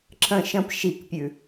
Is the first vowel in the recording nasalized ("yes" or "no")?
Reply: yes